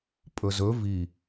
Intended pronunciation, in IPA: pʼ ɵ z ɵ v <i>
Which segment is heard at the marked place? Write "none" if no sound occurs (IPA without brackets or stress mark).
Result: i